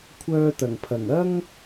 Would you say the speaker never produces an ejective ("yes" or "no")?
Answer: yes